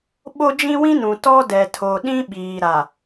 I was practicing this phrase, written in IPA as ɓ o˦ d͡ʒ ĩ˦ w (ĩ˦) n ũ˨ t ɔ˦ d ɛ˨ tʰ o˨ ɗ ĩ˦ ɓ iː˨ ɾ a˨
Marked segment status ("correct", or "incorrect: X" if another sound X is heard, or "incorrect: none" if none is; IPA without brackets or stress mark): correct